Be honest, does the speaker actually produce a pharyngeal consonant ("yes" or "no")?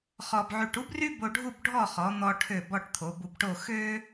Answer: yes